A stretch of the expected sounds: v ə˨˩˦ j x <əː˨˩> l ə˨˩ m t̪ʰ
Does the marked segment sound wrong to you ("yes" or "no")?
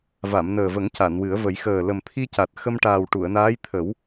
no